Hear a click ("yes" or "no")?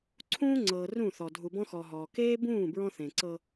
yes